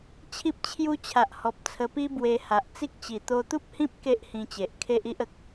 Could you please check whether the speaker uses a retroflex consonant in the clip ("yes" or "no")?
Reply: no